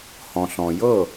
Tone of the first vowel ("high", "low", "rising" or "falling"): low